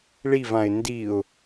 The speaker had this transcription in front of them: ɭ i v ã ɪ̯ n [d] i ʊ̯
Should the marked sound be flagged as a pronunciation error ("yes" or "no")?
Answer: no